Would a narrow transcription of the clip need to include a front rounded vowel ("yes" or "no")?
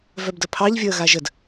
yes